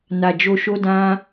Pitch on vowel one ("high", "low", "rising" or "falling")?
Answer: low